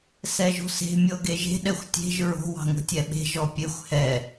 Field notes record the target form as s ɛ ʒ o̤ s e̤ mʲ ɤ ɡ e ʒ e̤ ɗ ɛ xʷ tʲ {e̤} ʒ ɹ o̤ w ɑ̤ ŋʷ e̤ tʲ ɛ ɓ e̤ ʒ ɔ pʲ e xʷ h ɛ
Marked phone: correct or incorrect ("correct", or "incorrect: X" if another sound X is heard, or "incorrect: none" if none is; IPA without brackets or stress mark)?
correct